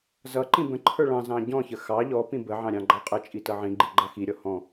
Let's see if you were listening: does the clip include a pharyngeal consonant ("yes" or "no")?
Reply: yes